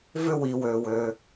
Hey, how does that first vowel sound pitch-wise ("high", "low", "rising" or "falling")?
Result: high